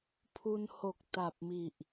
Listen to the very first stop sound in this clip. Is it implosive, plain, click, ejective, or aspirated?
aspirated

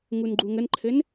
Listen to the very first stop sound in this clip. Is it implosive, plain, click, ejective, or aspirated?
click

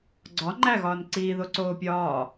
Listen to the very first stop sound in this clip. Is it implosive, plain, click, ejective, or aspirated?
click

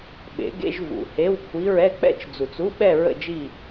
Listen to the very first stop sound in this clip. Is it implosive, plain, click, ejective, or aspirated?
implosive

